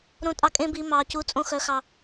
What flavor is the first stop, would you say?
ejective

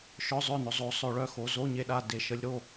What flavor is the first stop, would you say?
implosive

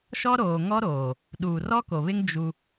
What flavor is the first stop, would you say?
implosive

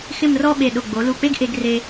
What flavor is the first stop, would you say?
implosive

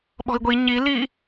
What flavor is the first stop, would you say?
implosive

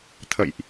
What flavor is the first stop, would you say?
aspirated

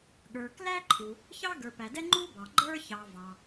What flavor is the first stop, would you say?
implosive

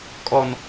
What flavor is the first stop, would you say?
ejective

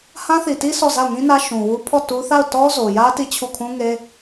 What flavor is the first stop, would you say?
plain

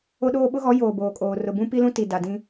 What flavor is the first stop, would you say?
implosive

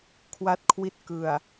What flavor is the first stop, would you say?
aspirated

